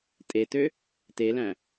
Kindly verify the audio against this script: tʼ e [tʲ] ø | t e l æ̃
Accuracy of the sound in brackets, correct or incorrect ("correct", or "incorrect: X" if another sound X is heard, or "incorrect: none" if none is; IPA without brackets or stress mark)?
incorrect: t